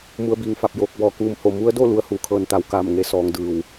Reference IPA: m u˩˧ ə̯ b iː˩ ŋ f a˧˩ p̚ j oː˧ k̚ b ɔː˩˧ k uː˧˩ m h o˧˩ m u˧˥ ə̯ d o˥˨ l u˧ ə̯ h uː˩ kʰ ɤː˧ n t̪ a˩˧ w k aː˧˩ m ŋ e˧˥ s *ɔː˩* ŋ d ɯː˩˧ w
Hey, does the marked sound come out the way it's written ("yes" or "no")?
no